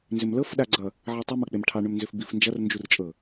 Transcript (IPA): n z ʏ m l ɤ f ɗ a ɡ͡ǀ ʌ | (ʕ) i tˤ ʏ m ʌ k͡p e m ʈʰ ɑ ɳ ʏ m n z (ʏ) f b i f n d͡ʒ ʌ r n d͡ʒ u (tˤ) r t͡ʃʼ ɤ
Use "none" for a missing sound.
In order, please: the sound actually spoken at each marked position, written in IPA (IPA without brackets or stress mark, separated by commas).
ʕ, ʏ, none